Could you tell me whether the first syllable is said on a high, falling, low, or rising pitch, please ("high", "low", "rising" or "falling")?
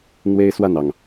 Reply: high